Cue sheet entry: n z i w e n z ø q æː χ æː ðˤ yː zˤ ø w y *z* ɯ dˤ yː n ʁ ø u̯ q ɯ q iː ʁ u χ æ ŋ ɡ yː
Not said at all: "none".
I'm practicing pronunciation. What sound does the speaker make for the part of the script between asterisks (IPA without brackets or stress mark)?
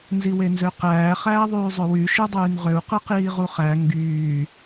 ʃ